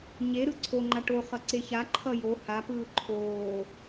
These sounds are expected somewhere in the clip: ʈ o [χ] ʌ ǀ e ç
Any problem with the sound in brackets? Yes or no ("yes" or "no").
no